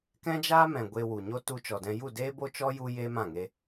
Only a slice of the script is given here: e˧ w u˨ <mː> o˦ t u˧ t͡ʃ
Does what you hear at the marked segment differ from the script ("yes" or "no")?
yes